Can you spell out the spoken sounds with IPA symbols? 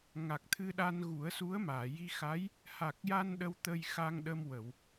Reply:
ŋ a˨˩ k̚ t̪ʰ ɨ˧ ɗ a˧ n ɣ u˨˩˦ ə̯ s u˧˥ ə̯ m aː˨˩˨ j i˧ x a˧˥ j | h a˨˩ k̚ j a˧ n ɗ ə˧ w t̪ ə˧ j x a˧ ŋ ɗ ə˧ m w ə˨˩˨ w

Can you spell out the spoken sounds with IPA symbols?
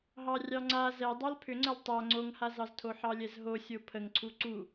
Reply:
ɦ ɑ rʲ ɑ ŋ͡ǀ a z ɛ dˤ ɑ l pʰ ʏ ŋ͡ǀ ə l tˤ a ŋ͡ǀ o ŋ h a z ɑ z tʰ o ħ ɑ lʲ ɛ z ɦ o sʲ o pʰ ə ŋ ǀʰ u ǀ u

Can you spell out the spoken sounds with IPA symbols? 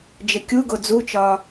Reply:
d͡ʒ ɘ kʲ u ɡ o d͡z u t͡ʃ ɒː

